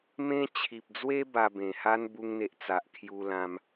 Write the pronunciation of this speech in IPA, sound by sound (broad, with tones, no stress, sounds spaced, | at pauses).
m ẽ˦ t͡ɕʰ i˨ p̚ d͡z w e˦ b a˧ b ẽ˨˩ h a˦ n b u˧ ŋ n̪ e˨ ʔ t͡s a˨ ʔ kʰ j u˧ l ã˧ m